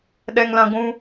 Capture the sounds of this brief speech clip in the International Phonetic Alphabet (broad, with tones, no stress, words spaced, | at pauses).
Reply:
ɗɛ˧ŋlã˧ ɡʷũ˧